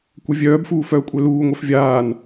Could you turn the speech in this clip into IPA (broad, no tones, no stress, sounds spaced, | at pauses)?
kʷ œ vʲ œː b f uː f œː kʷʼ œ l uː ŋʷ œ f vʲ aː n